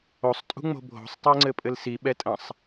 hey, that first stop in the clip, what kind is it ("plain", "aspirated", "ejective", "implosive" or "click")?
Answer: ejective